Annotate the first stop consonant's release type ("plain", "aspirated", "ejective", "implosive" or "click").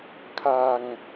aspirated